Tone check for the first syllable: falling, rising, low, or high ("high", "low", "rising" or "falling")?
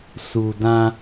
low